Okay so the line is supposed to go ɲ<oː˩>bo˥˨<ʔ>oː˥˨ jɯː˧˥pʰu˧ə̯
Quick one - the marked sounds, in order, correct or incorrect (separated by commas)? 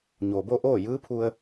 correct, correct